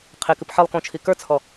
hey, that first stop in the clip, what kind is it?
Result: aspirated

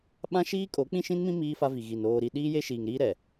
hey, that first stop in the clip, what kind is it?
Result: implosive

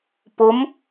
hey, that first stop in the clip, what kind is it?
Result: plain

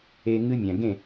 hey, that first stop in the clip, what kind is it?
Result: plain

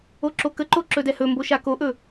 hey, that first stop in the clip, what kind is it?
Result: click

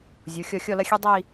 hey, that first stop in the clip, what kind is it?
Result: plain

